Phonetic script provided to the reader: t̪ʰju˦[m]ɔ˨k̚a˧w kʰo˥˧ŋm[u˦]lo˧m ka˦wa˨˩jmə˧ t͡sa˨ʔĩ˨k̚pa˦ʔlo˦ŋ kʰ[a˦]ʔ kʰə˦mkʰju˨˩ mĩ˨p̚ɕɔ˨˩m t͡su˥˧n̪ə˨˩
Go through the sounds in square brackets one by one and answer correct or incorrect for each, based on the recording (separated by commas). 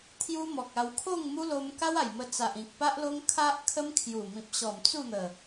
correct, correct, correct